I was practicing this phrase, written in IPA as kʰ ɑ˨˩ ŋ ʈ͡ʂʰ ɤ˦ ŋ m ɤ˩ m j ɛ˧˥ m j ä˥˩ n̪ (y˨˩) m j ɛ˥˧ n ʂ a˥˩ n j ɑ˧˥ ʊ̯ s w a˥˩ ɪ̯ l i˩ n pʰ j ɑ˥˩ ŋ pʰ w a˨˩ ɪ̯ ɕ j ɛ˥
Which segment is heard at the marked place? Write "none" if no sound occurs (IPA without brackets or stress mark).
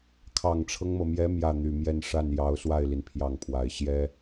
y˨˩